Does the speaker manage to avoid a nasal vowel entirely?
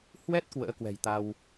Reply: yes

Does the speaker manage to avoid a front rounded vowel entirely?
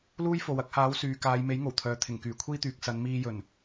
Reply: no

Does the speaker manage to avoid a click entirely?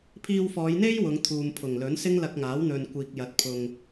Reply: yes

